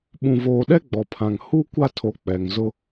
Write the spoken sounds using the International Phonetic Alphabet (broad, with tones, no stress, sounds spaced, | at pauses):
ɓ ũ˨ v oː˨ ɗ ɛ˦ ɡ͡b ɔ˨ pʰ ã˨ ŋ h u˦ kʷ a˦ tʰ o˨ k͡p ɛ˨ ŋ z ʊ˦